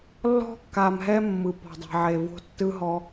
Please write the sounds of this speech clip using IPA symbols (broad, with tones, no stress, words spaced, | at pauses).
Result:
lːɔ̤˦kːa˨mɦɛ˦ mːɯ˨pɔ̤˨dˤɛ̤˨ʕe˨ vo̤˦tːɯ˦ɦɔ˦